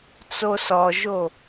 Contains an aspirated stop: no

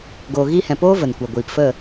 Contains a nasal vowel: yes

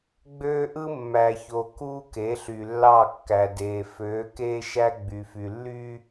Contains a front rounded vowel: yes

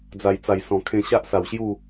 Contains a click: no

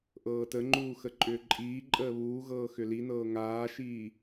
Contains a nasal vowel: no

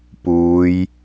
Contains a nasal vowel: no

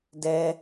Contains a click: no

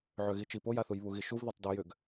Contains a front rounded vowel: yes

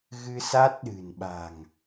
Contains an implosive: yes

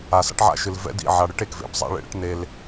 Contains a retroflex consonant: yes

